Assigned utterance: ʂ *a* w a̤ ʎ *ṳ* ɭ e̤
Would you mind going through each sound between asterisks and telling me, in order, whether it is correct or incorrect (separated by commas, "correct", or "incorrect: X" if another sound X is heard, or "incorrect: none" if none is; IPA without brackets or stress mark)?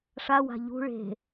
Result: correct, correct